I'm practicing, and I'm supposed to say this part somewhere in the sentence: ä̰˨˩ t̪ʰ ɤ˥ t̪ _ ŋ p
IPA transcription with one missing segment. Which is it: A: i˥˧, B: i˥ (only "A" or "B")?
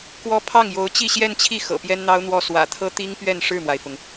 B